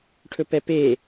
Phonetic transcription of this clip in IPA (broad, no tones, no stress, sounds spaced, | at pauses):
ʈʰ ɵ p ɛ p e